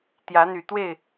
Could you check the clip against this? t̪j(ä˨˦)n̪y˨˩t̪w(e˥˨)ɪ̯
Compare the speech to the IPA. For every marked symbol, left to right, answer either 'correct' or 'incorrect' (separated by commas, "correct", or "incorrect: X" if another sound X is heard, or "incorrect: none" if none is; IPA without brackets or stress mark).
correct, correct